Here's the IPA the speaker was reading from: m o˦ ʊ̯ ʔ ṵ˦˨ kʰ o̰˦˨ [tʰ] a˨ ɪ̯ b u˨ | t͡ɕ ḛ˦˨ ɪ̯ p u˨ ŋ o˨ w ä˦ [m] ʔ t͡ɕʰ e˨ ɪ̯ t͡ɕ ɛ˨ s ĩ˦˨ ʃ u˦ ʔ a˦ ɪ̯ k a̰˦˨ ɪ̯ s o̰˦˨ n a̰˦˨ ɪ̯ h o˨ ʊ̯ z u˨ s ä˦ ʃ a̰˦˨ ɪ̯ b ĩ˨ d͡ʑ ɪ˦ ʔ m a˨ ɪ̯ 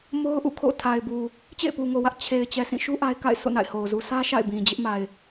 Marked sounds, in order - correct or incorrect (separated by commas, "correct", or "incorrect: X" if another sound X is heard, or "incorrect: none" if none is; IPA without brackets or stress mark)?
correct, incorrect: none